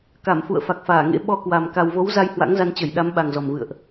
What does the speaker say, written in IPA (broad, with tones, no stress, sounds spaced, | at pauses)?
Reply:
k a˧˩ m f ṵ˧˨ ə̯ f a˨˩ k̚ f aː˧˩ ŋ ḛ˧˥ ɓ ɔ˧ k w a˨˩ m k a˨˩ w v o˨˦ w z a˧ j h w a̰˧˥ ŋ z a˧ n t͡ɕ ə˧˩ j ɗ a˨˦ m ɓ a˨˩ ŋ z ɔ˨˩ m v ɨ̰˧˨ ə̯ ʔ